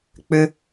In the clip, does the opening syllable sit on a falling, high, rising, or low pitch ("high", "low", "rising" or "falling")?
low